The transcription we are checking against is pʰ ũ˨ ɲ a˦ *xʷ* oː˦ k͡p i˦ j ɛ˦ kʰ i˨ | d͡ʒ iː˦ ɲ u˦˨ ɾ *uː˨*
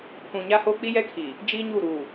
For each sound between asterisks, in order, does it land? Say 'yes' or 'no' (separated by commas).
no, yes